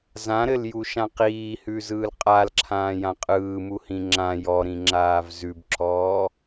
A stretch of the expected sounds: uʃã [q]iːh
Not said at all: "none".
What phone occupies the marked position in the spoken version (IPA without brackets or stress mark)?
q